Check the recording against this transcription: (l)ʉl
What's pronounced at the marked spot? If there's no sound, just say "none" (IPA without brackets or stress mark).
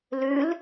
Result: l